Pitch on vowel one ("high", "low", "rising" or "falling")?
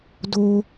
high